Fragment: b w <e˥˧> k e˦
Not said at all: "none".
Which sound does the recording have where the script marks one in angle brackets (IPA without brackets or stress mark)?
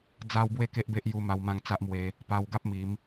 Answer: e˥˧